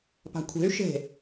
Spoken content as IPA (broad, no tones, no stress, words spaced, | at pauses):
pa̤kʷʰe̤y̯ ʃe̤